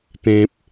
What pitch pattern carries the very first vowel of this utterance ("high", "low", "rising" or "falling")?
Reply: low